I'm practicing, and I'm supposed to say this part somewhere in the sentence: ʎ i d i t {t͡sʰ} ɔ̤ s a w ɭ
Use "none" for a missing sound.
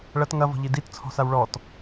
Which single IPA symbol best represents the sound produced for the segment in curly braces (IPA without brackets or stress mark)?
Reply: t͡sʰ